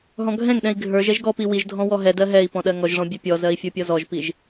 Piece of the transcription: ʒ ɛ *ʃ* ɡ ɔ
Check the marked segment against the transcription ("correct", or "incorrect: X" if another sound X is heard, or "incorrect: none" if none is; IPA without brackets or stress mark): incorrect: ʒ